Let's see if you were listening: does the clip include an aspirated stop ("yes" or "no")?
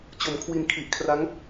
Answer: yes